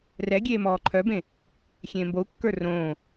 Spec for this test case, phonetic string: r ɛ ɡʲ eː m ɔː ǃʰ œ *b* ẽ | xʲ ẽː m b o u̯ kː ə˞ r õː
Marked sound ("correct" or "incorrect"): correct